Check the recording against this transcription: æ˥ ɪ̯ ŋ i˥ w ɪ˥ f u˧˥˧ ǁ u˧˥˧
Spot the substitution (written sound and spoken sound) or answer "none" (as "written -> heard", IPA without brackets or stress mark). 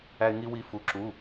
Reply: ɪ˥ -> i˥